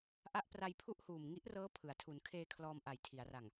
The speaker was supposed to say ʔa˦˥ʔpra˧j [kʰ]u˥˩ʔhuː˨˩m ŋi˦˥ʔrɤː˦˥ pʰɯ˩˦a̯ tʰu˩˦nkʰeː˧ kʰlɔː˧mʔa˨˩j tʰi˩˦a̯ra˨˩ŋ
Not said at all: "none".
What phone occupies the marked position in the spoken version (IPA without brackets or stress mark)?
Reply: pʰ